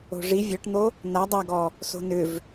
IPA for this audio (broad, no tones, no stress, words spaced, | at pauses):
o̤ʐi vʲɔʈn̪o | na dˤaɡɔ | so̤nʏv